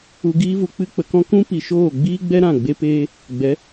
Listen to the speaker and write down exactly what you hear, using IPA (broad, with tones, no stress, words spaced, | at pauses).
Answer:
u˧ɡiː˦vu˧ k͡pɨ˦k͡pə˧kɔ̃˦ kũ˦pi˨ ʃoː˦˨ ɡ͡biː˦ɡ͡bɛ˦ ɾã˦˨ɡ͡be˦peː˦ | ɡ͡bɛ˨˦